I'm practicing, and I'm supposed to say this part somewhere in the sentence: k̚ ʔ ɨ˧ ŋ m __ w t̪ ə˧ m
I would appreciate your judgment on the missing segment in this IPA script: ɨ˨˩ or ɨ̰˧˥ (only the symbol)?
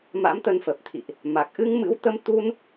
ɨ̰˧˥